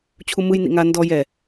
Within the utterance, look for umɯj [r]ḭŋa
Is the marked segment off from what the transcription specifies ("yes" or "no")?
yes